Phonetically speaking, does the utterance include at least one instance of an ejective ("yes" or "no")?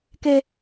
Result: no